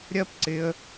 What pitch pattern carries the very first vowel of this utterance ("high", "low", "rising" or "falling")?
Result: high